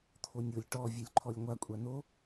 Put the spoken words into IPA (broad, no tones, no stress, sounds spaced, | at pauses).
t̪ʰ o nʲ o lʲ ʈ ɔ vʲ œ lʲ ǃʰ ɔ lʲ ŋʷ a kʷʼ a n o